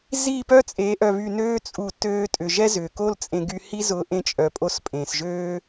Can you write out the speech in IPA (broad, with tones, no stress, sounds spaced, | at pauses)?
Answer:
z i˦˨ p œ˦ t͡sʼ e˨˦ ʔ œ˨ β y˨ n øː˧ t͡sʼ u˨ t øː˧ tʼ ʏ˨ ʒ ɛ˦ z ʏː˨ k o˦ l t͡sʼ ẽ˧ ɡ y˧ h i˦ z ʊː˧ ʔ ẽ˧ t͡ʃʼ œ˨ pʼ o˧ s pʼ ẽː˨ s ʒ øː˦